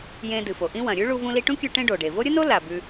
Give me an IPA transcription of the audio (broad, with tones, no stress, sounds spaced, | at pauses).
j ẽ˧ d ɨ˩ f o˩ ʔ ĩ˥ w ɐ̃˩ ɾʲ ʉ˥ ɭ u˧ v ũ˧ l i˧ ʈ ũ˥ kʲ ʉ˧ ʈ ẽ˥ ɖ o˩ ɖ e˩ v o˥ ɾʲ ɨ˥ n o˥ l a˩ b ʉ˧